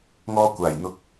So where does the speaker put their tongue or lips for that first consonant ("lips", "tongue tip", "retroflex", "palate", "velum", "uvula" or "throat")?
velum